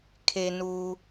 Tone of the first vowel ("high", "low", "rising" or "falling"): low